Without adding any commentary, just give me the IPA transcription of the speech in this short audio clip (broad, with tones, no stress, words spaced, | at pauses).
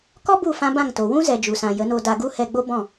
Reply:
kɔ˦bu˦˨fã˧ bã˦˨ŋto˨ wũ˦zɛ˨ d͡ʒu˨sã˨ jə˨˦no˧ da˧ɡu˦hɛ˧ɡ͡bo˦ bɔ̃˦˨